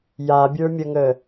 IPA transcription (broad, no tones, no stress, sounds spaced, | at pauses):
j a bʲ ə˞ mʲ ə ŋ ə